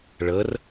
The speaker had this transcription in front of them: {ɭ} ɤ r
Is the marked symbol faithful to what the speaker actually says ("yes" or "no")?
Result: yes